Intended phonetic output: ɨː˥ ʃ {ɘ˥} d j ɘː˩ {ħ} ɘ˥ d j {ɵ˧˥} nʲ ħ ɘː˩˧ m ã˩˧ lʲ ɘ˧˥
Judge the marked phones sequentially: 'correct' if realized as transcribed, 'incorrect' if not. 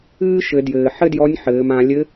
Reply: incorrect: ɘ˩˧, correct, incorrect: ɔ˧˥

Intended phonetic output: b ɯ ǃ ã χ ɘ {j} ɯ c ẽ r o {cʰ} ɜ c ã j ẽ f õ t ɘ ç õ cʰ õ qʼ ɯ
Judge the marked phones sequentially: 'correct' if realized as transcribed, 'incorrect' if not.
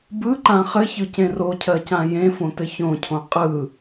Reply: incorrect: ç, correct

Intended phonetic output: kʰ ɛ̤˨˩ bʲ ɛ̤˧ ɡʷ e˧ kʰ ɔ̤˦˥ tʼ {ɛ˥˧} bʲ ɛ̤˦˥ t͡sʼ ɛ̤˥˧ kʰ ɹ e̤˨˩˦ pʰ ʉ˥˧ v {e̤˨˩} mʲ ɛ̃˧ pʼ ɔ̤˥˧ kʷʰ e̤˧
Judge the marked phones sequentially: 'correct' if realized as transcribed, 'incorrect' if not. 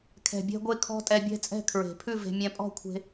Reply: incorrect: ɛ˧, incorrect: e̤˧

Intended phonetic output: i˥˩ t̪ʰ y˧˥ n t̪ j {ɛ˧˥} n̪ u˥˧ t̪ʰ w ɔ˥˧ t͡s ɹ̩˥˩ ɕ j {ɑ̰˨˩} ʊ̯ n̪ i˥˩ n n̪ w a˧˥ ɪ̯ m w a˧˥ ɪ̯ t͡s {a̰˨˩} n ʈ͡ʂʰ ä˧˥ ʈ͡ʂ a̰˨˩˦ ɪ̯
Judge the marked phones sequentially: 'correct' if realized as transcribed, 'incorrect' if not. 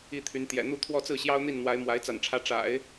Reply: incorrect: ɛ̰˨˩, incorrect: ɑ˥, correct

